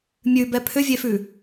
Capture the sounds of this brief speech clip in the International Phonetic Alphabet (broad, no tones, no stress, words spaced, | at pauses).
mʲʉbɛ pʰʏvʲefʉ